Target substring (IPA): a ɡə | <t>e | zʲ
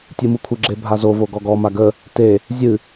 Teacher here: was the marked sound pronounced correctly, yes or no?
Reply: yes